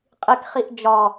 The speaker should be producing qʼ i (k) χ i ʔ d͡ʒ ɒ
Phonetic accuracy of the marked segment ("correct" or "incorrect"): correct